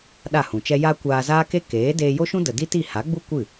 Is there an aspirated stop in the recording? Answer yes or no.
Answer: no